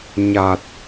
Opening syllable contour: low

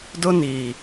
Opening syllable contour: high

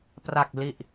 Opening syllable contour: low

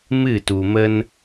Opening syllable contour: falling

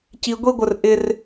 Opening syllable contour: high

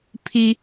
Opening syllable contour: high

